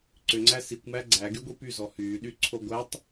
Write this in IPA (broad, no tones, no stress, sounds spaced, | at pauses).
ǀ ʏ ŋ͡ǀ æ s i kʷ m æ ɡ͡ǀ æ ɡ y ɡʷ i p y z ɔ h yː ɗ y ǀʰ o ɡʷ æ tˤ